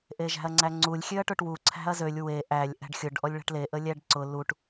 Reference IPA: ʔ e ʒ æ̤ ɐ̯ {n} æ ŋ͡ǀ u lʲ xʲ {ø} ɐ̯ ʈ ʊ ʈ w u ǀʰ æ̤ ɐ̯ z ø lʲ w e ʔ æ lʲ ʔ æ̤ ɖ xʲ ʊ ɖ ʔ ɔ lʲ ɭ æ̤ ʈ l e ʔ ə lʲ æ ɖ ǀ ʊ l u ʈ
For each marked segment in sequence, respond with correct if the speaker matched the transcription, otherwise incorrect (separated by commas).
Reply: incorrect, correct